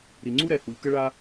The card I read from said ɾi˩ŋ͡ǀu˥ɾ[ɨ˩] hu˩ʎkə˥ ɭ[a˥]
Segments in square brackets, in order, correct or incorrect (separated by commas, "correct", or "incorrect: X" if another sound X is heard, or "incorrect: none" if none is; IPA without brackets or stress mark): incorrect: ɛ˩, correct